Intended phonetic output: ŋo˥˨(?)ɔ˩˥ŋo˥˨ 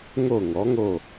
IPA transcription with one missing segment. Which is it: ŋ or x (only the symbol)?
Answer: ŋ